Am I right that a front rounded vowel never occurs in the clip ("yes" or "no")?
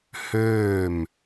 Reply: no